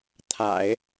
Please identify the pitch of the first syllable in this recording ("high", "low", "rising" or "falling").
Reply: low